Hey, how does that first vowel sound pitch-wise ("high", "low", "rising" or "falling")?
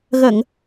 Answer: low